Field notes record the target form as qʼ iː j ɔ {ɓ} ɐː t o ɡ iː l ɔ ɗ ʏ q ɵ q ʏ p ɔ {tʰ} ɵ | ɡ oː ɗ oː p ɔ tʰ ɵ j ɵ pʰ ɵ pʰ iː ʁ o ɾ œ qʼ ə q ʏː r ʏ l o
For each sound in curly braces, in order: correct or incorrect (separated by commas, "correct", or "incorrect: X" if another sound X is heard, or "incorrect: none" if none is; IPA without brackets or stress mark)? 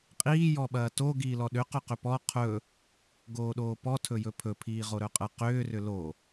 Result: correct, incorrect: qʰ